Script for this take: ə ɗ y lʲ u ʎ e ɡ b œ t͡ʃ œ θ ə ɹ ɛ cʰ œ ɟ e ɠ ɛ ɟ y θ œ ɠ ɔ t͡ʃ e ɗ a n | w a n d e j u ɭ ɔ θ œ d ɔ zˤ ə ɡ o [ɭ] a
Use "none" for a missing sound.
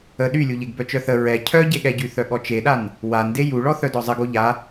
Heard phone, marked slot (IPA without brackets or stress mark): ʎ